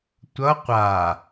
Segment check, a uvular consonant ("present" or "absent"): present